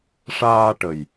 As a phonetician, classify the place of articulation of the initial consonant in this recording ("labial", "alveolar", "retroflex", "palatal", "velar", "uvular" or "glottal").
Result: retroflex